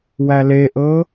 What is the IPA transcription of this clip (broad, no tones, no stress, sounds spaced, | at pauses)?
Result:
w æ l e ʔ ɤ